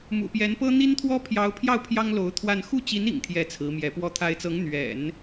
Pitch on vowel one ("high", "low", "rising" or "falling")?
low